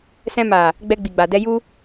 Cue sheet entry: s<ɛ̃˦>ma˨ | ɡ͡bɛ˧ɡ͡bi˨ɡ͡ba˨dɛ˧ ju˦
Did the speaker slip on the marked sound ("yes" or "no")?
yes